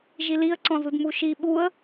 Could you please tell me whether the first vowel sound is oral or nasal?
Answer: oral